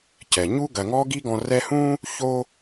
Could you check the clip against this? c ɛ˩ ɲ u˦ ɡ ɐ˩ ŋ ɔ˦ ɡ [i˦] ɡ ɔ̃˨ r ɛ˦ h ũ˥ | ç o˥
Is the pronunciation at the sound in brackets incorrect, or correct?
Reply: correct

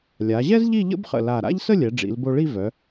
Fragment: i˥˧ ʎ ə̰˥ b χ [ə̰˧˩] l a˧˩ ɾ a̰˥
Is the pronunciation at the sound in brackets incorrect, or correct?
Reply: correct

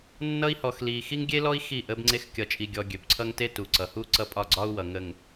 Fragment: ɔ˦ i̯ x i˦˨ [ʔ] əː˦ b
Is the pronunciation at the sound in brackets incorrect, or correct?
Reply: correct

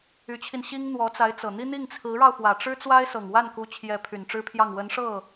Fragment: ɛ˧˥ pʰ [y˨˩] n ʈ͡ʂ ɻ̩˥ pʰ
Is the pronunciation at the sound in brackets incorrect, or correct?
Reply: correct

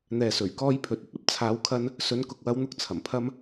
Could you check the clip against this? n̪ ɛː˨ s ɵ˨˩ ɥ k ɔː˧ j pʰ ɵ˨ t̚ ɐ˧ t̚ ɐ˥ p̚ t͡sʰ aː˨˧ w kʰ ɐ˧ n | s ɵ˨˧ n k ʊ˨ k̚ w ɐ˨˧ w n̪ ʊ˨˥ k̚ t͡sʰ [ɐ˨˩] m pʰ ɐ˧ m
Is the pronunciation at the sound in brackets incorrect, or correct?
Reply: correct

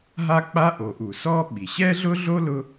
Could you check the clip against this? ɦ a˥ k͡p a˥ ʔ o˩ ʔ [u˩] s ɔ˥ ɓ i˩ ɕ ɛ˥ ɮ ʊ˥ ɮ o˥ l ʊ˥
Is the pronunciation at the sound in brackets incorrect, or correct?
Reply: correct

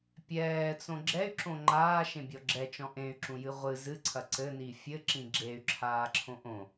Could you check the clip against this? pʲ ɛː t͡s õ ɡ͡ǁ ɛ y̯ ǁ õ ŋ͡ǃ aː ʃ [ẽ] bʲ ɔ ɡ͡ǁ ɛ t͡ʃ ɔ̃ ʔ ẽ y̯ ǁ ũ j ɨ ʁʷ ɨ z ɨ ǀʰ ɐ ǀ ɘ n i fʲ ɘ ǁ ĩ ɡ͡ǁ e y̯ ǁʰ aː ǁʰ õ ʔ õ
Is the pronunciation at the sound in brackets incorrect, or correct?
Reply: correct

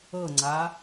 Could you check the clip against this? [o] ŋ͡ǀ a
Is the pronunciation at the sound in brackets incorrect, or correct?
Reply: incorrect: ɤ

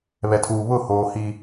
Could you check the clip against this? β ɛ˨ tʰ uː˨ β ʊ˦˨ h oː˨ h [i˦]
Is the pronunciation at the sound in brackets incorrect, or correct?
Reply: correct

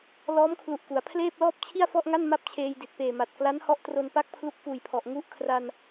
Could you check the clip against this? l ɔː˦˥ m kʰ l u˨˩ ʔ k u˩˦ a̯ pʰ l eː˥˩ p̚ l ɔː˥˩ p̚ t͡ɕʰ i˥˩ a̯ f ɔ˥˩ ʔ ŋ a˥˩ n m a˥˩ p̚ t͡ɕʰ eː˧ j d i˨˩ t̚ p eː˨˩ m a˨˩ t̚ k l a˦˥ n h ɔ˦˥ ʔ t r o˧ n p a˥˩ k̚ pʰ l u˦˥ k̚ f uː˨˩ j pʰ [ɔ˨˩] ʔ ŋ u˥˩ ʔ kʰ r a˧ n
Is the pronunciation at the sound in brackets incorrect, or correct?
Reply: correct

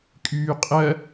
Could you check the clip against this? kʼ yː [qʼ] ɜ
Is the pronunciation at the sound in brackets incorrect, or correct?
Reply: correct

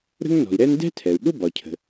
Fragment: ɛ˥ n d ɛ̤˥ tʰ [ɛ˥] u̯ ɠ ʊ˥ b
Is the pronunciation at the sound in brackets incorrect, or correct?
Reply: incorrect: ɛ˩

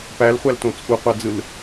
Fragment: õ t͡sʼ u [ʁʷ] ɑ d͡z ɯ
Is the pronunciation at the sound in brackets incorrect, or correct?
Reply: incorrect: qʷ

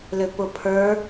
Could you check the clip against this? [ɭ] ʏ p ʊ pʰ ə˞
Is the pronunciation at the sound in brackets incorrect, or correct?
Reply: incorrect: l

